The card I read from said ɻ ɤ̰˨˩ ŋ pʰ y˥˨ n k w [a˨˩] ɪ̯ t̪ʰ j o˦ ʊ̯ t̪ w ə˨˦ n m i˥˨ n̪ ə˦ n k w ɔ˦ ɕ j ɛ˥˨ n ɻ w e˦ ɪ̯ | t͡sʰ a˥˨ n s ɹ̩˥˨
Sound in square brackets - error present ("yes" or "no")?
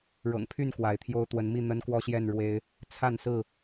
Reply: yes